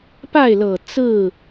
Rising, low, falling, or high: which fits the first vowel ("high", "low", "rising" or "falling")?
falling